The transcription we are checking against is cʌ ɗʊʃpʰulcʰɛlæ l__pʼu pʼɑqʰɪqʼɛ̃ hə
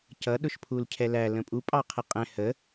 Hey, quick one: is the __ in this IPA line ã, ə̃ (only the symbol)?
ə̃